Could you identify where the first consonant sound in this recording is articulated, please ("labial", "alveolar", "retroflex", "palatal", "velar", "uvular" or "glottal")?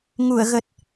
velar